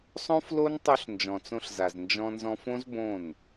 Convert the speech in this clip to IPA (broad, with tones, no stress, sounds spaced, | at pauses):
sˤ õ˦ f l o˦ n tˤ o˧ ɬ n d͡ʒ ɔ̃˨ t͡s õ˧ ɬ z a˨ z n d͡ʒ ɔ̃˧ n z ɔ̃˧ f õ˦ z b õ˦˨ n